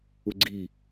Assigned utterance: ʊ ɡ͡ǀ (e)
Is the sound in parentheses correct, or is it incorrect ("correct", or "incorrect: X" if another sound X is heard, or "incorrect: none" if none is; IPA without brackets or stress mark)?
incorrect: i